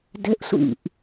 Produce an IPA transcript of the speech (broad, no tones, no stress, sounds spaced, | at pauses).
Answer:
d ɘ ʔ sʷ ḭ ʔ